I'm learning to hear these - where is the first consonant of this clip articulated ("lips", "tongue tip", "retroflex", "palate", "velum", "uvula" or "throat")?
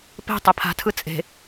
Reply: lips